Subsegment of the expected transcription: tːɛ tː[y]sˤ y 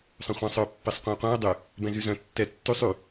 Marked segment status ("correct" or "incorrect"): correct